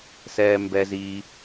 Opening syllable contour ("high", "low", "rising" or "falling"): high